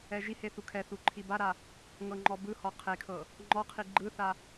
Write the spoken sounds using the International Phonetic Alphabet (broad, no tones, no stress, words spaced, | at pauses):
ɛʒihe θukʰɛθu ǃʰibaɾa | ŋɤŋ͡ǃɔbɯhɔ qʰekʰɤ | ŋ͡ǃɔqʰi ɡ͡ǃɯθa